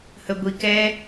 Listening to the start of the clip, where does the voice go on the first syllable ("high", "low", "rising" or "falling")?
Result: high